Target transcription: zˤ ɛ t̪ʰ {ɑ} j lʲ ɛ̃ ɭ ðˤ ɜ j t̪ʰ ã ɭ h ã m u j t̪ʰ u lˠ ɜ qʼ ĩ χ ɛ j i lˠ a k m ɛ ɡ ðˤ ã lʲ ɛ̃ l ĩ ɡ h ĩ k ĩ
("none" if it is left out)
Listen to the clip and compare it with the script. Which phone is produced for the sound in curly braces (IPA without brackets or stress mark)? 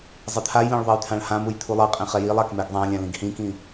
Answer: a